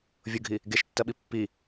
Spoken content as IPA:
vʲ ʊ ɡʱ i | ɡ e ʃ tː ɐ ɓ i pː i

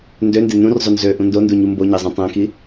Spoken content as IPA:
n d ø n d e n ũ r zˤ o n z ø ʔ ũ n d o n d u ɲ u m b o ɲ e zˤ ũ tˤ æ̃ k i

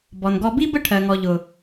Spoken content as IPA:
b ɔ˨ n ɡ ɔ˧ b i˦ b ə˦ ʈʰ ɜ˨ ŋ ɔ˨ ʎ ʊ˨

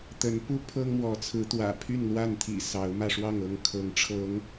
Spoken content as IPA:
t̪ ə˨˦ n p u˦ pʰ ɤ˦ ŋ m w ɔ˨˦ t͡sʰ ɹ̩˨˦ t̪ w ä̰˨˩ pʰ y˥˨ n l w a˥˨ n t̪ʰ ḭ˨˩ s ɑ˨˦ ʊ̯ m ä˧ ʂ w ɑ˥˨ ŋ ɤ˥˨ ŋ kʰ ɤ˨˦ ŋ ʈ͡ʂʰ ɤ˨˦ ŋ

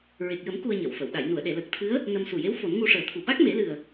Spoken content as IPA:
ɹ e˨˩ k̚ j ə˨˩˦ m k u˧ ə̯ ɲ ə˨˩˨ w f ə˨˩˨ w ɗ a˨˩˨ j n u˨˩˨ ə̯ ɗ e˨˩˨ l əː˨˩ k̚ t̪ʰ ɨ˧˥ ə̯ | n ə˧ m s u˨˩ j e˧˥ w f o˨˩˦ n ŋ u˧ ʂ əː˨˩˦ t̪ʰ u˨˩ ɓ a˦˥ k̚ m e˨˩˦ l ɨ˨˩ ə̯

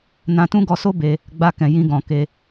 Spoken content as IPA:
n ã˧ t ũ˦ ɡ ɔ˧ s o˦ b e˧ | ɡ͡b a˧ k ɛ̃˨ j ĩ˧ ɡ ɔ̃˨ k e˧

